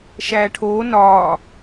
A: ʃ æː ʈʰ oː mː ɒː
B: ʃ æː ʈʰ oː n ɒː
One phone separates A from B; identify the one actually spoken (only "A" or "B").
B